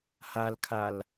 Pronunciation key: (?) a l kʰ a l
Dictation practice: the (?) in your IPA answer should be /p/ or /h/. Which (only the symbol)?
h